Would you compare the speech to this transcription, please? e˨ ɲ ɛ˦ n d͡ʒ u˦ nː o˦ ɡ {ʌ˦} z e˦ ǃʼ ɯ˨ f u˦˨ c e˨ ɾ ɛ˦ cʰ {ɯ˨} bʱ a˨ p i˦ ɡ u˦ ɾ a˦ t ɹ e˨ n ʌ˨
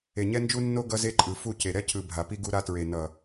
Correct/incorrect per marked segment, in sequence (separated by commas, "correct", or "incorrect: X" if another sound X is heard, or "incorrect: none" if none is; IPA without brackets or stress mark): correct, correct